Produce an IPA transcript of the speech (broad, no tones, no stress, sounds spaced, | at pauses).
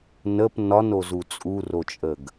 n ə p n ɒ n o z u t͡sʼ u r o t͡ʃʼ ə ɡ